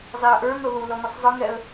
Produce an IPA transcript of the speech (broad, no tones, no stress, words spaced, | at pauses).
zˤeə̯ʔə˞ŋɤ ðu lɔŋusˤzˤɯŋɛə̯